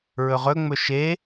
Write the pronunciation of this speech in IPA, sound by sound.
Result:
ɹ ɵ ʁ ɵ ŋ͡m ɵ ʃ e

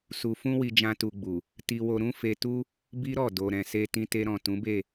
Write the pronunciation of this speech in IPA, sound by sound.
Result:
s u˧ f ũ˦ w i˧ d͡ʒ ã˦ t u˧ ɡ͡b u˨ | t i˧ w o˧ ɾ ũ˦ f e˧ t u˦ | b i˦ ɾ ɔ˦˨ d o˨ ɾ ɛ̃˨ s e˧ t ĩ˧ t e˧ ɾ ɔ̃˨ t ũ˨˦ b e˦˨

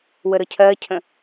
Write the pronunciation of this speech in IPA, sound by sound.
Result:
w ə ɾ ɤ cʰ ɜ cʰ ə̃

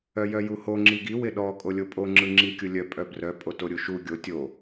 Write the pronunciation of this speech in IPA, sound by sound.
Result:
œ j œ j u h o ŋ͡ǁ i ɡ i w ɪ ɗ ɔ kʼ o lʲ o pʼ o ŋ͡ǁ ɯ ŋ͡ǁ i kʲ u lʲ œ pʼ œ b r œ pʼ o t o ɾʲ u ʃ u ɡʲ o tʲ o

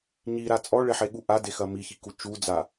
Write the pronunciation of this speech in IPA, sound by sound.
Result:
ɲ i ɾ a t͡sʼ ɔ ɭ e ħ e ɠ u ʔ a d e x ɐ m i ç i k u t͡ʃ u d͡z a

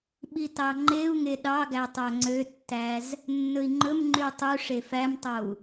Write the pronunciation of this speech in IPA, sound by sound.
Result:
ɓ i t ɑ ŋ͡ǃ e u̯ ŋ e ɗ ɑ ɡ æ tˤ æ ŋ͡ǀ ø tː æ z | nː ɵ i̯ ŋ͡ǃ ɵ m ŋ͡ǃ y u̯ tˤ ʉ ʂ e f æ m tˤ o u̯

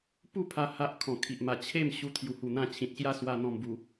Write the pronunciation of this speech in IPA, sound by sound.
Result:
p u˥˧ pʰ a˧ h a˦ ʔ kʰ ɔ̃˨˩ kʰ i˨ ʔ m a˨˩ t͡ɕʰ e˥˧ m ɕ u˧ t̪ʰ j u˨˩ h u˨˩ n̪ ã˧ t͡ɕʰ ĩ˨ t̚ ɕ j a˥˧ s w a˧ n̪ ɔ̃˨˩ m b u˨˩

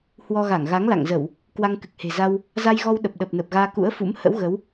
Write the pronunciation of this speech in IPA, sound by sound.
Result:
h w ɔ˧ ɣ a˧˩ ŋ ɣ a˨˦ ŋ l a̰˧˨ ŋ z ə˧˩˨ w | k w a˧ ŋ k ɨ˨˩ k̚ h e̤˨˩ z a˧ w | z a˧ j ɣ ɔ˧ w ɗ ə˨˩ p̚ ɗ ə˨˩ p̚ n ə˨˩ p̚ ɣ aː˧ k ṵ˧˥ ə̯ f ṵ˧˥ m h ə̰˧˥ w ɣ ə˨˦ w

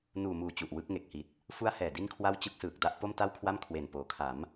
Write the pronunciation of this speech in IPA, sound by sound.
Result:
n uː˨˩ m uː˨˩ t͡ɕ u˨˩ ʔ w ɯ˦˥ k̚ ŋ e˨˩ k̚ h i˨˩ t̚ | f u˦˥ a̯ h ɛː˨˩ d i˥˩ n kʰ w a˥˩ w t͡ɕ ɯ˦˥ k̚ s ɯː˨˩ k̚ d a˥˩ ʔ p o˥˩ m t a˥˩ w kʰ w a˥˩ m kʰ w e˨˩ n p oː˩˦ kʰ a˩˦ m

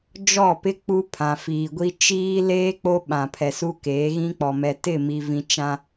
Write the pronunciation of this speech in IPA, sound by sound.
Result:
d͡ʒ ɔ˦˨ p ɪ˦ k͡p u˦ pʰ ã˨ f iː˨ ɡʷ i˦ t͡ʃ iː˦ l eː˦ k͡p o˦ ɓ ã˨ pʰ ɛ˨ s u˦ k eː˨˦ ɣ ĩ˦ k͡p ɔ˨ m ɛ˨ t ɪ˦˨ m i˨ v ĩ˨ t͡ʃ ã˦

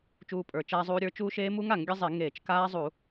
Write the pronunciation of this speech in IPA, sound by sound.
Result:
t͡ʃ uː˦˥ pʼ ə˞˧˩˧ t͡ʃ aː˦˥ zˤ uː˦˥ ɾʲ ə˞˦˥ t͡ʃ uː˦˥ ʃ eː˦˥ m u˦˥ ŋ a˧˩˧ ŋ ɡʲ ə˦˥ zˤ e˧˩˧ ŋ eː˧˩˧ t͡ʃ k aː˦˥ zˤ u˧˩˧

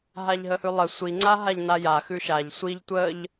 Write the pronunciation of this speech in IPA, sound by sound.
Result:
ɦ a ʎ ɦ ə h ʉ lˠ ə sʷ i ŋ͡ǀ a ɦ a ʎ n a j a x ʉ ʃ a ʎ sʷ i ʎ tʷ ə ʎ

